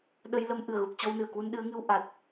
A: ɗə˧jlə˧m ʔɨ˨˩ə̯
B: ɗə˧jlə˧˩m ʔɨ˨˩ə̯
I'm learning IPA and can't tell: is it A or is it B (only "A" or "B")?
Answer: A